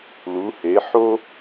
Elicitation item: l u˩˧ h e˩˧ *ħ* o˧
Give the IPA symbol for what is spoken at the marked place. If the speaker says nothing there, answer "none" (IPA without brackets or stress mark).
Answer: ħ